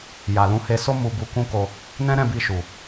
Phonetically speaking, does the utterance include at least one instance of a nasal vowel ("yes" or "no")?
yes